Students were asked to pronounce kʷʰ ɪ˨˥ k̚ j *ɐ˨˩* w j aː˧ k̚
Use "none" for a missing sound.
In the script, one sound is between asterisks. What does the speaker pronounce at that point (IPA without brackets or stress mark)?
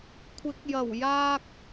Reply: ɐ˨˩